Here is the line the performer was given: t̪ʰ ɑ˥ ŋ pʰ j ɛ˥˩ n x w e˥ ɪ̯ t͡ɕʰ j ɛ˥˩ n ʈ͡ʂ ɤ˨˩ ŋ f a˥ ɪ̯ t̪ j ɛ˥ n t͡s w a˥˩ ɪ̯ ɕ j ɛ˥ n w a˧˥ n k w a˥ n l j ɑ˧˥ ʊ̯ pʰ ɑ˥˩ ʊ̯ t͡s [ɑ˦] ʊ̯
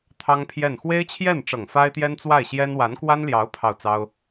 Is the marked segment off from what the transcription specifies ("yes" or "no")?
yes